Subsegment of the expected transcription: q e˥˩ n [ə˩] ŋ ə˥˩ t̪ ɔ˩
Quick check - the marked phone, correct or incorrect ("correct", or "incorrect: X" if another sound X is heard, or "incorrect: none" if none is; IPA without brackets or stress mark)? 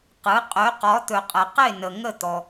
correct